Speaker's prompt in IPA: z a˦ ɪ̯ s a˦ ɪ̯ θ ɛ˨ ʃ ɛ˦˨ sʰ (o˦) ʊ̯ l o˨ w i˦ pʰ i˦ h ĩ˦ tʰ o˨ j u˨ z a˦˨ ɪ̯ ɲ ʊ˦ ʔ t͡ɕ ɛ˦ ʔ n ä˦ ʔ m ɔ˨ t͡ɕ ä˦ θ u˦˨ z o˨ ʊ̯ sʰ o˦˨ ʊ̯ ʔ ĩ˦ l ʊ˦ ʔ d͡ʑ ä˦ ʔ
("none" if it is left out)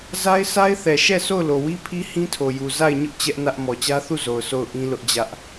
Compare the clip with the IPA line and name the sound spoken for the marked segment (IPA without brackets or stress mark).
o˦˨